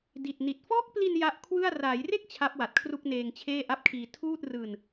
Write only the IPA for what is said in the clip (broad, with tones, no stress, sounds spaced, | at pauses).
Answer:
d i˨˩ t̚ n i˨˩ t̚ f ɔː˦˥ k̚ p l i˧ n j a˦˥ ʔ kʰ w ɯ˥˩ a̯ r aː˩˦ j r e˥˩ k̚ t͡ɕʰ a˦˥ p̚ w a˨˩ t̚ kʰ r u˥˩ k̚ n eː˧ ŋ t͡ɕʰ eː˥˩ ʔ a˥˩ p̚ kʰ iː˧ tʰ uː˥˩ t̚ r ɯː˧ n